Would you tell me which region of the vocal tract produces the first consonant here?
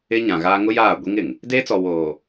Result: palate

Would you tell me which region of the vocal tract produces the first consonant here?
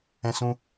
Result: tongue tip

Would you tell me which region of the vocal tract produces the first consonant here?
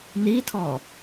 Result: tongue tip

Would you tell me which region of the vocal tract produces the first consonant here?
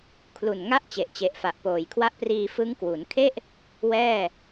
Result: velum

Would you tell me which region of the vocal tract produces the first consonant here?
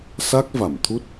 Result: tongue tip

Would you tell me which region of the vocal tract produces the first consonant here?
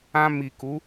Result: lips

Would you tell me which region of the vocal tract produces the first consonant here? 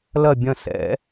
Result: tongue tip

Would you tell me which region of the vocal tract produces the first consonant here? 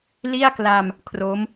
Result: tongue tip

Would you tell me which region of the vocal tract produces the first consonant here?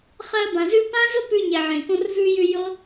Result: uvula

